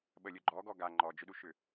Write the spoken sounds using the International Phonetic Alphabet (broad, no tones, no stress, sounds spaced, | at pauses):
ɓ ə lʲ ʊ ɡ͡ǃ ɔ ɡ ɔ ɡ a ŋ͡ǃ ɔ d͡ʒ ʏ ɗ u ʃ ʏ